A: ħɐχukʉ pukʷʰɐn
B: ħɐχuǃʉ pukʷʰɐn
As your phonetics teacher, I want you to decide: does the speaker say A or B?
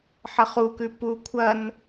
A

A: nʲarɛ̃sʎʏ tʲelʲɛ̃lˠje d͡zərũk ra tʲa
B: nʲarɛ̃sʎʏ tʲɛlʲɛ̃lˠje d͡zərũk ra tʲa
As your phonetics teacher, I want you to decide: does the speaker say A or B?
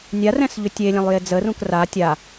A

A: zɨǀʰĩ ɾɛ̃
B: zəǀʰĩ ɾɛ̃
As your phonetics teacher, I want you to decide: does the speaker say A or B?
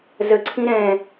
B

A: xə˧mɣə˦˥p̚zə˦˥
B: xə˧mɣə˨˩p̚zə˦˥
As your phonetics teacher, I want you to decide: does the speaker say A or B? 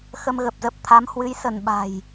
B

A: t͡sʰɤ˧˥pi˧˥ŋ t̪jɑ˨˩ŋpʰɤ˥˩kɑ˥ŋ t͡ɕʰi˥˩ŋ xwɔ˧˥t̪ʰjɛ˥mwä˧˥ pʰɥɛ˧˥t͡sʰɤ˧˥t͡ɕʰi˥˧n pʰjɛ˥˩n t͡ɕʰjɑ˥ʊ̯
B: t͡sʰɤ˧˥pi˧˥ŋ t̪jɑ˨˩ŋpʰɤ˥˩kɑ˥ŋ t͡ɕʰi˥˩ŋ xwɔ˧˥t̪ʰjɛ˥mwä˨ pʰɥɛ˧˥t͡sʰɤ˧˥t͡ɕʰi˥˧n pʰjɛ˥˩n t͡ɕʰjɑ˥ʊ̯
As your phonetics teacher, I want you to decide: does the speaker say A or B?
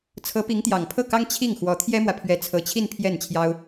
B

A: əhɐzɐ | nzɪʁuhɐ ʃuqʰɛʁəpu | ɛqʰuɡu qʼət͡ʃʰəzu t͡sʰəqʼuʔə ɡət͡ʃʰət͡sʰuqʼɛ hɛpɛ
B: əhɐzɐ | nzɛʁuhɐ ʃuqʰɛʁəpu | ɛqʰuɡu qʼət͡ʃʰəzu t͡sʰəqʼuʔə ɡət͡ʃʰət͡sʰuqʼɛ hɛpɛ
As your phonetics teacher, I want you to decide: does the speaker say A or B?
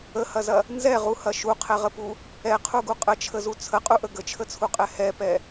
B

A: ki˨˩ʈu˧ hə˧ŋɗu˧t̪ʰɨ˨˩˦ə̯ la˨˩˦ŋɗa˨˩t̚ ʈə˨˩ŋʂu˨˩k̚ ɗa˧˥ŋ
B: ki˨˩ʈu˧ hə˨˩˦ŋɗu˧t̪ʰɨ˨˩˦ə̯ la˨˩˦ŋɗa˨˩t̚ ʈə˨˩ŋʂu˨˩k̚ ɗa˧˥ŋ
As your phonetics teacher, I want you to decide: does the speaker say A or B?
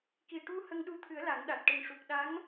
A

